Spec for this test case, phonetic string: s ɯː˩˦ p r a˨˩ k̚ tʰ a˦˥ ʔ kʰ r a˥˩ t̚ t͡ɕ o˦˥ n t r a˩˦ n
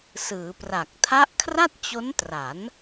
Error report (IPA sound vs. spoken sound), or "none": none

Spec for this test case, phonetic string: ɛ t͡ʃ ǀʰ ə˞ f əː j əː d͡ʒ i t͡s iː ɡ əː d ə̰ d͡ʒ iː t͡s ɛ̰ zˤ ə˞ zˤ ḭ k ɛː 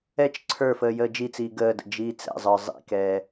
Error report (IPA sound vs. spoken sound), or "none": none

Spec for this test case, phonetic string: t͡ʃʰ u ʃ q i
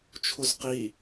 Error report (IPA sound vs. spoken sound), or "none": ʃ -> z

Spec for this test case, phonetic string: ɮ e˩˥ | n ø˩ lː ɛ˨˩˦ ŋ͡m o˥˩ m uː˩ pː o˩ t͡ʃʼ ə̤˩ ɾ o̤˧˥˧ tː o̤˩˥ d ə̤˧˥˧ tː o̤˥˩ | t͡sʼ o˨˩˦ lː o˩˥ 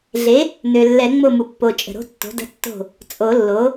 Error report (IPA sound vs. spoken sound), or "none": uː˩ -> u˩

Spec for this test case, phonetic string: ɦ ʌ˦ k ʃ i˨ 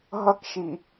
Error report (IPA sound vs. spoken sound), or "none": none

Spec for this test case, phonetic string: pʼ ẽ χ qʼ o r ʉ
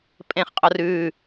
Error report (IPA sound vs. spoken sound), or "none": none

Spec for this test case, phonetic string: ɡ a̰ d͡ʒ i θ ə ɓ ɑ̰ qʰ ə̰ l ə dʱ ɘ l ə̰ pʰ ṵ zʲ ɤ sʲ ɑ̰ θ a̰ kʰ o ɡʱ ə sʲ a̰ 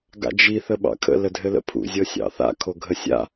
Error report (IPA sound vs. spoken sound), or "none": qʰ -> kʰ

